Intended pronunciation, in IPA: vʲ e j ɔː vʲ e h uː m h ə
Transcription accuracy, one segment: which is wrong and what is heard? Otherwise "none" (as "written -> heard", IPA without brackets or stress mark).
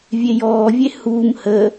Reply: none